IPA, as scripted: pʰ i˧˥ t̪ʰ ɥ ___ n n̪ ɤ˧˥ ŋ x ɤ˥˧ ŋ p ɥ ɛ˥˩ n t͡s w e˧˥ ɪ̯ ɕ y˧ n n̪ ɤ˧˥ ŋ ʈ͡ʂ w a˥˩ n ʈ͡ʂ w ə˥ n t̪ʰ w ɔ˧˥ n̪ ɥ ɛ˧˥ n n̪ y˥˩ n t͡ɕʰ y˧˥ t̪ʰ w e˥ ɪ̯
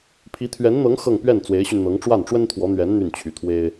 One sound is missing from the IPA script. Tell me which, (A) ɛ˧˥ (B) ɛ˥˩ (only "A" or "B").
A